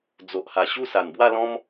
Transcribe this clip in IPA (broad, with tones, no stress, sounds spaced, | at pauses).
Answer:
d͡z o˨ ʔ h a˨˩ ɕ u˥˧ s a˨˩ n b w a˥˧ l ɔ̃˦ m